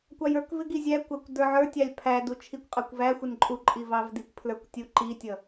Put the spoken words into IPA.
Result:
kʷ ɑ j ə˞ k v ɪ ɡ i zʲ æ kʷ æ kʷ d ə˞ ʕ ə˞ tʲ ɑ lʲ pʰ æ d u t͡ʃʰ i kʷ qʼ ə˞ kʷ v æ xʷ ɪ n ǃʼ u ǃʼ i v ɑ v d i kʷ pʰ l ə˞ kʷ tʲ u ǃ i tʲ ʌ

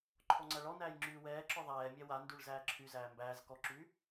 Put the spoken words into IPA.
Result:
ǃʰ ɔ ŋ͡ǀ æ ɭ ɔ n æː j ŋ͡ǁ yː w ɛː ǁ ɔ ðˤ ɛː mʲ ɛ w a n d y ɭ z æː ǁʰ y z æː m b æː z k ɔ ǁ y

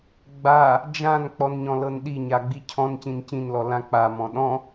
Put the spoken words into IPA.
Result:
ɡ͡b a | d͡ʒ ã n k͡p ɔ n ɲ ɔ̃ l ɤ n ɗ i ɲ a ɡ͡b i cʰ ɔ̃ n c ĩ n c ĩ n l ɔ l ã k͡p a m ɔ̃ ɗ ɔ̃

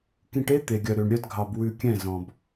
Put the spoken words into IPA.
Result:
k ĩ˧ ʈ e˦ t̪ e˨ ɡʲ œ˨ ɾ ø˨ ɳ ɾʲ œ˧ d ɡʱ ɑ˨ b w ʉ˧ kʲ ɛ̃˦˨ z ɔ̃˨ b

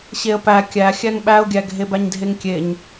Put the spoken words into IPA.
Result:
ɕ e ə̯ p æ kʲ æ xʲ æ ŋ ɓ æ ʊ̯ ɡʲ æ ɡʱ e b æ ɲ dʱ e ŋ kʲ e ɲ

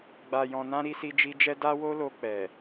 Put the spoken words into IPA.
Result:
ɡ͡b a˨ j ɔ̃˨ n ã˧ ɾ i˧ s i˧ d͡ʒ i˧ d͡ʒ ɛ˦ d a˦ w o˦ l o˧ k͡p ɛ˨

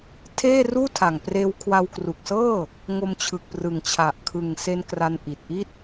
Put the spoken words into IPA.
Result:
tʰ eː˥˩ r uː˥˩ tʰ a˨˩ ŋ p r eː˧ w kʰ w a˧ w k r u˨˩ k̚ s ɤː˥˩ | ŋ o˧ m t͡ɕʰ ɯ˨˩ k̚ p r ɯ˨˩ ŋ t͡ɕʰ a˨˩ ʔ kʰ ɯ˨˩ ŋ s e˧ n k r a˧ n ʔ i˨˩ t̚ ʔ i˥˩ t̚

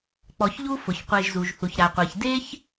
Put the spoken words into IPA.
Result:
k͡p ɔ˨ ç ʎ u˦ f ʊ˩ ç qʷ e˨ ʒ z u˩ ʒ θ u˩ ç ɾ a˩ qʷ ɛ˩ ç d e˦ ç

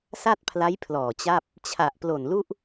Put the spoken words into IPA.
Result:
s a˥˩ t̚ pʰ l a˦˥ j pʰ l ɔː˨˩ t͡ɕ a˥˩ p̚ | t͡ɕʰ a˨˩ ʔ p l o˨˩ n l u˥˩ ʔ

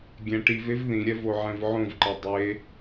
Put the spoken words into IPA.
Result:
ɡʲ ɛ̃ ʈ i v e v ð ĩ ɾʲ ɛ v o ʕ ɛ̃ v ʕ õ v ǃ ʌ dˤ e

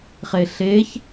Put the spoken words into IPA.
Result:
χ e ɬ e ç

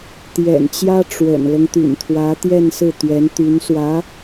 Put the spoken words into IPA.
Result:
t̪ j ɛ̰˨˩ n t͡ɕ j ä˥ ʈ͡ʂ w ə̰˨˩ n l ɤ˦ ŋ t̪ y̰˨˩ n t̪ʰ w ä˧˥ t̪ j ɛ˥˧ n s ɹ̩˥˩ t̪ ɥ ɛ˧˥ n t̪ y˧˥ n s w ä˧˥

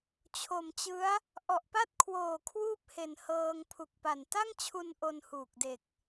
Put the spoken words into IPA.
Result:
t͡ɕʰ o˨˩ m t͡ɕ ɯ˦˥ a̯ | ʔ ɔ˨˩ ʔ p a˥˩ t̚ kʰ w oː˨˩ kʰ w uː˥˩ p̚ h e˨˩ n h ɤː˧ ŋ pʰ u˨˩ k̚ p a˨˩ n t a˥˩ ŋ t͡ɕʰ u˧ n ʔ o˧ n h uː˨˩ k̚ d e˨˩ k̚

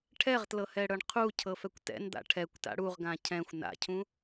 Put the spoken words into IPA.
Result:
ʈʰ ɛ ʁ t l ɤ h ɛ ɽ ɤ ɳ qʰ u cʰ ɤ f ɛ kʷ t ɛ̰ n d̪ a̰ ʈʰ ɛ kʷ t a̰ ɽ u ʁ ɡ ã cʰ ɛ̃ xʷ n a̰ cʰ ũ

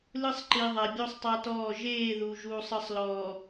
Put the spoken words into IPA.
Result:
l ɯ˦ sˤ ǃ i˨ ðˤ ɛ˨ bʲ o˦ sˤ tˤ a˦ t ɔː˦˨ ʒ eː˦˨ ð u˨ ʒ uː˨ sˤ ɯ˨ sˤ l ɔː˨

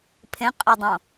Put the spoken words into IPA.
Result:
pʰ ẽ qʼ i dˤ õ

